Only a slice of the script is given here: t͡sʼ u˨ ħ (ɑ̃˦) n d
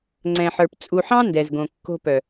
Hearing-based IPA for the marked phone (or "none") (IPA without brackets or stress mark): ɑ̃˦